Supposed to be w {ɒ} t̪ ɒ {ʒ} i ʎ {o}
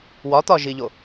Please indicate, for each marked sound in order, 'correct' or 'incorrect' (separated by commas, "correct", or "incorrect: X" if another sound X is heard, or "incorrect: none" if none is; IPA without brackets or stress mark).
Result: correct, correct, correct